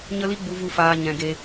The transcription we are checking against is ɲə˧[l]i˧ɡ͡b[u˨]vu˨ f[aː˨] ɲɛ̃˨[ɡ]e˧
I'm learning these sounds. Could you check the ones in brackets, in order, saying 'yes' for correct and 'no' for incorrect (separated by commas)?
yes, yes, yes, yes